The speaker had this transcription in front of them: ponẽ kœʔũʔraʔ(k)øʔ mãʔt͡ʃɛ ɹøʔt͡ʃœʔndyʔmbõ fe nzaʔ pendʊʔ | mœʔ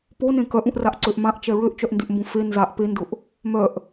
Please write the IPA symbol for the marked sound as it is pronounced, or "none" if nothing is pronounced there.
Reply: ǀ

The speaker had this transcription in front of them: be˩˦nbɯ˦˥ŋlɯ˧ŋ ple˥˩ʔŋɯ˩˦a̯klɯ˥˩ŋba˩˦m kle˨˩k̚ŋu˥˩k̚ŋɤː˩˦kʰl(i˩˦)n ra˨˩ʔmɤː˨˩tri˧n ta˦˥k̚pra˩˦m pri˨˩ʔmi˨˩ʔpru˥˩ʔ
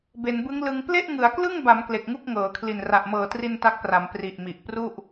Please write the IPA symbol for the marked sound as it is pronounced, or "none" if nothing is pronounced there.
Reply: i˨˩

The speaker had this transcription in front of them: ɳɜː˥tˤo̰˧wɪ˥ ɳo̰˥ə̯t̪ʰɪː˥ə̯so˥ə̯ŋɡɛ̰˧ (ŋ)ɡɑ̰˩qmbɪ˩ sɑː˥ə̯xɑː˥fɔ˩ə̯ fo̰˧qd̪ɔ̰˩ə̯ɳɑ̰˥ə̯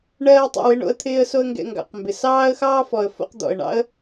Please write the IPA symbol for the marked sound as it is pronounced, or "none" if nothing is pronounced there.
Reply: ŋ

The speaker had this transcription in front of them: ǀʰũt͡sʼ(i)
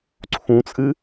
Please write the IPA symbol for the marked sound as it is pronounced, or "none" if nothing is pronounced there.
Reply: ɨ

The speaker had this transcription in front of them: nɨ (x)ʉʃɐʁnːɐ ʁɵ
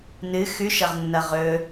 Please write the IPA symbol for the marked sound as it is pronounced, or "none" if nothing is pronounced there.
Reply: x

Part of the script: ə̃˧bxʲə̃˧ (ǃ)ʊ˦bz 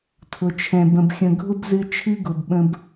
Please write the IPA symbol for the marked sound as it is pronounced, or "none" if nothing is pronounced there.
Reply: ɡʱ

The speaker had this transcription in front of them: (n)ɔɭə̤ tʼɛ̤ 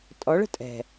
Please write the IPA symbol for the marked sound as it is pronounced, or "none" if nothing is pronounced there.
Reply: tʼ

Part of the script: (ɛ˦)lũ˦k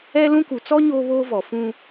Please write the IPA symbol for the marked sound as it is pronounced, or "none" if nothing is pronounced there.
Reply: ɛ˦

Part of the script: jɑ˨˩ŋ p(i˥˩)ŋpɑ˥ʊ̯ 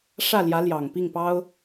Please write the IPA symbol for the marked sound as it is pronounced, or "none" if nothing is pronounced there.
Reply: i˥˩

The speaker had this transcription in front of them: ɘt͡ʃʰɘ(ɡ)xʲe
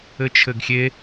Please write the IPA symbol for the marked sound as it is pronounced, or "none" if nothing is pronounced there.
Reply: ɡ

